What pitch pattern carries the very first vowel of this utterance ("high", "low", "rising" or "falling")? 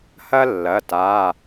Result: high